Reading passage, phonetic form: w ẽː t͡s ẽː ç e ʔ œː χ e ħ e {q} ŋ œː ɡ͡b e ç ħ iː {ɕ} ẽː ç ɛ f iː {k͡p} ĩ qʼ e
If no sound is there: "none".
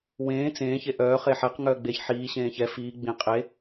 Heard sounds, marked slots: q, ɕ, ɡ͡b

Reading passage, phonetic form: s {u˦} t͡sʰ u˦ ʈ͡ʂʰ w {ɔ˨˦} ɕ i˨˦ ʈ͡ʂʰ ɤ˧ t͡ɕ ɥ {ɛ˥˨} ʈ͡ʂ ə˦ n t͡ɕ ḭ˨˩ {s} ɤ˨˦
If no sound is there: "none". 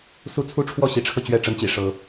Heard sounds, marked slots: u˦, ɔ˥˨, ɛ˥˨, ʂ

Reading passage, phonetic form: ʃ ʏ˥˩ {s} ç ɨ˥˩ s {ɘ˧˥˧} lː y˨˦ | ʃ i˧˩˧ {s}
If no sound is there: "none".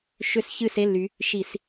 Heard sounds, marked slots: s, e˧˥˧, s

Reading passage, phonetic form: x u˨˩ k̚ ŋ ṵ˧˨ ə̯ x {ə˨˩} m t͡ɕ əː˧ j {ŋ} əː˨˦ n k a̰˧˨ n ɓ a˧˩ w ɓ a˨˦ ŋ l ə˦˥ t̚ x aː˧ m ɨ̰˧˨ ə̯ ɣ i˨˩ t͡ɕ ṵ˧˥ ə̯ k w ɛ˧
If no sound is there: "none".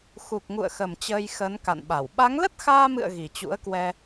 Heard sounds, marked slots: ə˨˩, x

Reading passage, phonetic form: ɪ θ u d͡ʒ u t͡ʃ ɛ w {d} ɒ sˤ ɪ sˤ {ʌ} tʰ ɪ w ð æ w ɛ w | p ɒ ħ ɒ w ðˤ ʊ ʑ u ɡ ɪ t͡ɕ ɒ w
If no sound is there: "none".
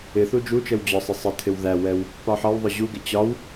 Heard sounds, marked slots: d͡ʑ, ə

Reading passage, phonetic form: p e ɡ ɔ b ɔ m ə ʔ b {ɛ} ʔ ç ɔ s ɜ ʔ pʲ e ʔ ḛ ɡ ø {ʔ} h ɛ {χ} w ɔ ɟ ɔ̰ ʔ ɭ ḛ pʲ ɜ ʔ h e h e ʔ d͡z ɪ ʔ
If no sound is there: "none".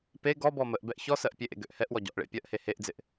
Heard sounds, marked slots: ɛ, ʔ, ʔ

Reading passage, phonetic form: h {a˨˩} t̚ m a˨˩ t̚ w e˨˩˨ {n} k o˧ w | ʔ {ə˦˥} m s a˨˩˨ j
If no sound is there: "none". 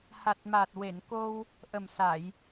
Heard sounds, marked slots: a˨˩, n, ə˨˩

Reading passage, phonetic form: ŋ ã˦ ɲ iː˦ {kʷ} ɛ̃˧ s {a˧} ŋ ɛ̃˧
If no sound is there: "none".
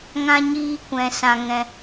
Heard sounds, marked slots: kʷ, ã˧

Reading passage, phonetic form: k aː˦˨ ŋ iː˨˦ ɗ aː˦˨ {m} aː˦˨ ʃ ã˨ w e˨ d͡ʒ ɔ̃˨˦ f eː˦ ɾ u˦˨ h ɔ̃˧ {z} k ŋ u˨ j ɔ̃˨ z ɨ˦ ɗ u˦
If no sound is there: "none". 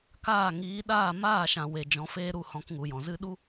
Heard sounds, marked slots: m, none

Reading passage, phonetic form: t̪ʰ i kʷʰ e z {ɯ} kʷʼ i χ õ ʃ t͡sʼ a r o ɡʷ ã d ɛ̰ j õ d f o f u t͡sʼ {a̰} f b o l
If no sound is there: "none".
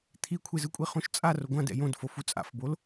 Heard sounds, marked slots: ɯ, a̰

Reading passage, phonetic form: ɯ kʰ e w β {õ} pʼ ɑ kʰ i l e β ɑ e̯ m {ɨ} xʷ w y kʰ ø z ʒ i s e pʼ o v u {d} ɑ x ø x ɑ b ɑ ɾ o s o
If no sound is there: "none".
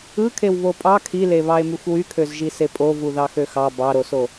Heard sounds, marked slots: o, y, ð

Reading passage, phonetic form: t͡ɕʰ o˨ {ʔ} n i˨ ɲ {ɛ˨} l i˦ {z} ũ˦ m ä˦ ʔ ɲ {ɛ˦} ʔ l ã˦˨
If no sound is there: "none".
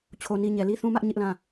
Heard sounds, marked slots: none, ɛ˨, θ, ɪ˦

